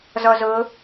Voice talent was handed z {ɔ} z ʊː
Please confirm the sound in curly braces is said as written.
yes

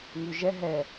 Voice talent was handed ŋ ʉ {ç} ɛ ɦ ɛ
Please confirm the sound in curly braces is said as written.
no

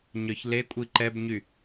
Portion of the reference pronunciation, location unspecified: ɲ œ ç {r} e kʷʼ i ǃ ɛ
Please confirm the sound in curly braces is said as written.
no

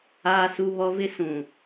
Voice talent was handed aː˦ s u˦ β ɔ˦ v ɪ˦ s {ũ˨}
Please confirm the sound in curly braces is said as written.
yes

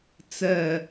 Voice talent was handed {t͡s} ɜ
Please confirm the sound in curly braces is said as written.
yes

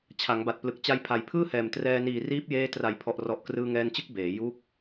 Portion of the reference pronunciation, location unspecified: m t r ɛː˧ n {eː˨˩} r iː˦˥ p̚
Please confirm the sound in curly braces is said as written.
no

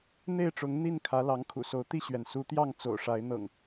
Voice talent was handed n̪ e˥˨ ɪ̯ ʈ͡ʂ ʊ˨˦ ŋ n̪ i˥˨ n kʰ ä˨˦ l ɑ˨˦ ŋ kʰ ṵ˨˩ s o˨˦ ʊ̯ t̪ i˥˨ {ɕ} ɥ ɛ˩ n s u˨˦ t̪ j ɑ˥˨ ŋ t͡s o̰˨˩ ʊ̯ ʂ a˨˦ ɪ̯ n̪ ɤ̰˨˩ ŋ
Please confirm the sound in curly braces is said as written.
yes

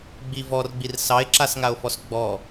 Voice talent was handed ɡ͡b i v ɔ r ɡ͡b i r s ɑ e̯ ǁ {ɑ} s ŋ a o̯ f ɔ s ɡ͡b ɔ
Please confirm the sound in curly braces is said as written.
no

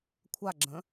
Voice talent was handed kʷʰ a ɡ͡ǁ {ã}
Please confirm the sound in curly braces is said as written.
no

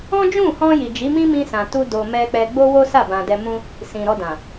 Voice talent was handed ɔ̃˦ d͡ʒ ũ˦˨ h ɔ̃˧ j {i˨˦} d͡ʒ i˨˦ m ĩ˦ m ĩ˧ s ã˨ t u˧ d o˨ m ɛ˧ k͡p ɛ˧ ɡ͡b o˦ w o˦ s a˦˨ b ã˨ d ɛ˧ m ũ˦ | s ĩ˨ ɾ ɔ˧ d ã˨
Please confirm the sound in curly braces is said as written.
no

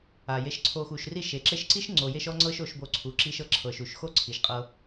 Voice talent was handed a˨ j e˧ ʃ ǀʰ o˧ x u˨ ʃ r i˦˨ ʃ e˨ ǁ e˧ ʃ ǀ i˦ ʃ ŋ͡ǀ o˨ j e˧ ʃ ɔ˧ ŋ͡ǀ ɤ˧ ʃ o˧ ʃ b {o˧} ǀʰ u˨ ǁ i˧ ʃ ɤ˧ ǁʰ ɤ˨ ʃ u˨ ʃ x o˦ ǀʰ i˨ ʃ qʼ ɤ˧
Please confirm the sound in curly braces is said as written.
yes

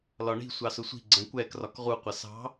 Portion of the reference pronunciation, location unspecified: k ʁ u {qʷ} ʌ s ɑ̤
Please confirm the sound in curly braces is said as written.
yes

